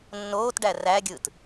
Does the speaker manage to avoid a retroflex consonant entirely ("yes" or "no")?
no